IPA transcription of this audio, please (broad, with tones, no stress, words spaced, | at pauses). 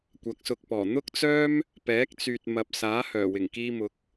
kʷɐ˨˥k̚sʊ˨k̚pɔː˨˩ n̪ʊ˥k̚t͡sœː˥m | pɛː˨˥k̚t͡syː˨t̚mɐ˨p̚ saː˨˥hœː˨˩wɪ˨˩ŋ kiː˧mʊ˨˥k̚